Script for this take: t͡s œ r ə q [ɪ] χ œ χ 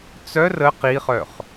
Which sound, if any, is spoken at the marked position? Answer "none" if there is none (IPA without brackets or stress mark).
i